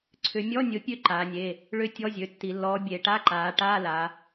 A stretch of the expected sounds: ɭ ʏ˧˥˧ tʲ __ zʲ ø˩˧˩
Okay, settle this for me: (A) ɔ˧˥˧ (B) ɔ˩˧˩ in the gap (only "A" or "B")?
A